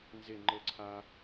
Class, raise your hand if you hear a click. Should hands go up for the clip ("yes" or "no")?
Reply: yes